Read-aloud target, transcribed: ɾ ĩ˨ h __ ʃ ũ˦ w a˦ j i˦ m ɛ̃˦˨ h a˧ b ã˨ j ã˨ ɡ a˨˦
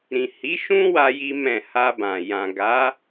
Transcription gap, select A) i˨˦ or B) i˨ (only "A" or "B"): A